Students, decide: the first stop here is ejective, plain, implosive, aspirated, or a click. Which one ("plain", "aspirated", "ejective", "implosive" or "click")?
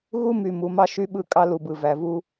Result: implosive